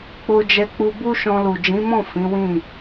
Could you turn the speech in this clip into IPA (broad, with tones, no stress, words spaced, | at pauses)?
k͡po˧d͡ʒɛ˧ k͡pu˧bu˦ʃɔ̃˧lu˨ d͡ʒĩ˨˦mɔ̃˦˨ fĩ˨˦wĩ˦˨